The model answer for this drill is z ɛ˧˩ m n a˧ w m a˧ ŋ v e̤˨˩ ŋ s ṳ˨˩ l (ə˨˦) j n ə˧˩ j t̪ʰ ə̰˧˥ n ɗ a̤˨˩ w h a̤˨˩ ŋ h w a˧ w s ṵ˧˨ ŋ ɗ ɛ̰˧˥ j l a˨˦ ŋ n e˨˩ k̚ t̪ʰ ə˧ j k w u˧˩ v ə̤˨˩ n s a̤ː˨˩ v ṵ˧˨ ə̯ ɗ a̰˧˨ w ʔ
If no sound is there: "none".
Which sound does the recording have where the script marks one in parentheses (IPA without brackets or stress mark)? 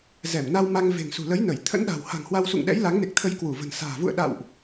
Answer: ə˨˦